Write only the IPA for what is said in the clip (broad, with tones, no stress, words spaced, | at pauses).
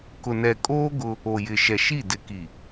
kʊ˨nɛ˨kʼoː˦ ɡʊ˦ | o˨jɪ˨ʃɛ˨ ʃi˦˨dɪ˨ki˨